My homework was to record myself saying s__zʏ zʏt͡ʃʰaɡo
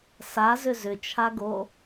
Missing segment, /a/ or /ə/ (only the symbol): a